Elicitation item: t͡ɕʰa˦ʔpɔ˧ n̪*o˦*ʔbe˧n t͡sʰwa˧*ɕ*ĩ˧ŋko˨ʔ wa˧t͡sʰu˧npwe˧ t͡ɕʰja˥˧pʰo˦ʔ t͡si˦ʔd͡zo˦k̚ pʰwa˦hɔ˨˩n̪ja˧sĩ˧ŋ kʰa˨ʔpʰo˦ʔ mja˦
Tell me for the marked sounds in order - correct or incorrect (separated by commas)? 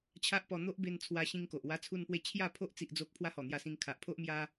correct, correct